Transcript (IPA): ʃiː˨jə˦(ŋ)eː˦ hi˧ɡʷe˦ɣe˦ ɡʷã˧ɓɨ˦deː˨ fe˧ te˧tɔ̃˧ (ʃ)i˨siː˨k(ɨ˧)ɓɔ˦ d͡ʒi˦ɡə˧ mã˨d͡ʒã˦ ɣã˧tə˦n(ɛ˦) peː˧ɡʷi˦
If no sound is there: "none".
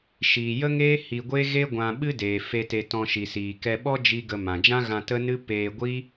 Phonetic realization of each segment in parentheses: ŋ, ʃ, ɛ˧, ɨ˦

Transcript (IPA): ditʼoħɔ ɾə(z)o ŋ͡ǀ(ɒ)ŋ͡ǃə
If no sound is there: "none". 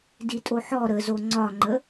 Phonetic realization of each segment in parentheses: z, ɒ

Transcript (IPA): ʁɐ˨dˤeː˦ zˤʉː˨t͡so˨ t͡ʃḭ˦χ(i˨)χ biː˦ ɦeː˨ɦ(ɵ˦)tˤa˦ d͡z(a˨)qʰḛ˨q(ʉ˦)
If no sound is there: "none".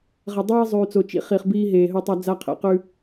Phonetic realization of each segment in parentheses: i˨, ɵ˦, a˦, ʉ˦

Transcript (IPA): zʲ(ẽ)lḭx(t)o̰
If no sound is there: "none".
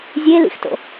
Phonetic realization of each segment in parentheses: e, t

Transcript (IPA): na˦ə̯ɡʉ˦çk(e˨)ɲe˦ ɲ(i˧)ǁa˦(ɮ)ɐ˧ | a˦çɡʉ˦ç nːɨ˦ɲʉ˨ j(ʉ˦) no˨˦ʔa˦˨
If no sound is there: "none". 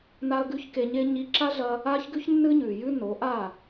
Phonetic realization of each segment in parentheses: e˧, i˧, ɮ, ʉ˦

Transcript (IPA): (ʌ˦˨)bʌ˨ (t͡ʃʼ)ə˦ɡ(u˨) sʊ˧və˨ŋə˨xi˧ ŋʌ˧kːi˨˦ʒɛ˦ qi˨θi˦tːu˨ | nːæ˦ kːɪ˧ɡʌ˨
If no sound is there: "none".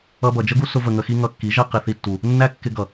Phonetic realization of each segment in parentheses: ʌ˧, d͡ʒ, u˦

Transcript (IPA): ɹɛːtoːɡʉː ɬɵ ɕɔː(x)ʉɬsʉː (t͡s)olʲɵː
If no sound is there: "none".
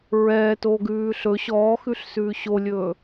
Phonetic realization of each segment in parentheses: x, ɕ

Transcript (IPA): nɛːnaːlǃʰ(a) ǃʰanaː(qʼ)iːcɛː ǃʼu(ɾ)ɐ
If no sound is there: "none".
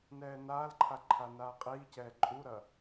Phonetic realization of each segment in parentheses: a, qʼ, ɾ

